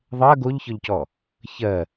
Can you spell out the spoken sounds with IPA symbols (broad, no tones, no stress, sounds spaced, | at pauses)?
ðˤ ɜ ɡ o ʎ ç ɔ ʎ c ɔ | ç ɜ